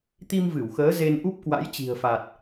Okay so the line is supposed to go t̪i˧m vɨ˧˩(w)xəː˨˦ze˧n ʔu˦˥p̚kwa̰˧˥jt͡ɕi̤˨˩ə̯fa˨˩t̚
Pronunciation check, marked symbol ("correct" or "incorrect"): correct